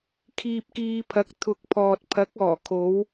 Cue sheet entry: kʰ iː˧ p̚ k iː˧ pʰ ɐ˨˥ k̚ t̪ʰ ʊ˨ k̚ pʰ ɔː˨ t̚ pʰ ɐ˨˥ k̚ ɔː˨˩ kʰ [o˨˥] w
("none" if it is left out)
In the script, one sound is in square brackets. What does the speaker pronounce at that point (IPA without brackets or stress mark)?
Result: o˨˧